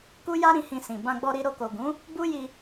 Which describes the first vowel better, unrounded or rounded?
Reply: rounded